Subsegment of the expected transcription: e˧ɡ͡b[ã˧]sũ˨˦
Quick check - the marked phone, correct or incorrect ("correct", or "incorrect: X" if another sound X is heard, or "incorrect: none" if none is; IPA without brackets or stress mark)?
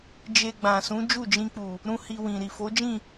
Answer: incorrect: ã˨